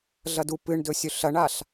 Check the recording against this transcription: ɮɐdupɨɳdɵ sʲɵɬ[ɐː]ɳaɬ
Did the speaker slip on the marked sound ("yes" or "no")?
yes